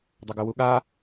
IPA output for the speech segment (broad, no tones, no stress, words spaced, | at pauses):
dˤəɡɵwuɠa